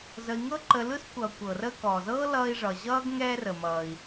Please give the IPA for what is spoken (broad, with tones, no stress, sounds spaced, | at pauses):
z ə˨ i̯ ŋ ɤ˦ ǃ ə˨ l ɯ˦ s kʷ ʌː˩ kʷ ɤ˩ r ə˦ k ɔː˩ z ɤː˥ l ʌː˦ i̯ ʐ ʌ˩ ʑ ʌː˥ ɡ ŋ ɛː˥ r ə˩ m ʌː˩ i̯